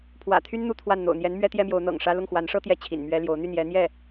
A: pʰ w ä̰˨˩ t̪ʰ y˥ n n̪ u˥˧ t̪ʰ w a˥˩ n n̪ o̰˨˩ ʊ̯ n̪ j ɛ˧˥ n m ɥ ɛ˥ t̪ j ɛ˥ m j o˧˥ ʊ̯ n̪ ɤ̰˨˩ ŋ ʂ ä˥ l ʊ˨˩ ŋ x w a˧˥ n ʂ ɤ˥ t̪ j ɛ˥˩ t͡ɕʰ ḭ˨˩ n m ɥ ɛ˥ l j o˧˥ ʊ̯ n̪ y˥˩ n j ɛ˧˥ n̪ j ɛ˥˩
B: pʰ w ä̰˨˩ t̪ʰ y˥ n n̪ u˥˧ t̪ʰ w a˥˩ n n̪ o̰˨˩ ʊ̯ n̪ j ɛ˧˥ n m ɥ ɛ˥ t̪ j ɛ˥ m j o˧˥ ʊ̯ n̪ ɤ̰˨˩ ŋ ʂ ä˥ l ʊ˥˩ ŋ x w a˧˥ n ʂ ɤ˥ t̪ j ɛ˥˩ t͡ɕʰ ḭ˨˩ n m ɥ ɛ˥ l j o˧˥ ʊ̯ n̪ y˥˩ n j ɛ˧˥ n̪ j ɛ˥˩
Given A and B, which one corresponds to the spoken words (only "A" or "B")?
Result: B